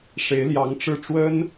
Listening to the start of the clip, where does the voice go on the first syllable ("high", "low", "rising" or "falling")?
rising